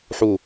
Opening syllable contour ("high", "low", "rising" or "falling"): low